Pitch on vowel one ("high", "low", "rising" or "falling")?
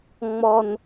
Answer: high